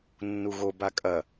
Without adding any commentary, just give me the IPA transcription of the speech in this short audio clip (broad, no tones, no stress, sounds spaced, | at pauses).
nː u ɣ o b a kʼ ɐ